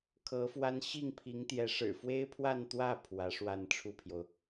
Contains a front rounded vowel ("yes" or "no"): no